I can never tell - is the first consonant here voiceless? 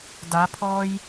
no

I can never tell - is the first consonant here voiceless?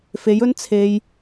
yes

